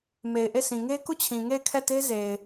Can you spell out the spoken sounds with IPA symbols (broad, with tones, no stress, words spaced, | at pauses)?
me˨ɪ̯ʔe˦˨sʰĩ˨ ŋe˦ku˦˨t͡ɕʰĩ˨ ŋe˦˨ɪ̯kʰɛ˦˨te˦ ze˨ɪ̯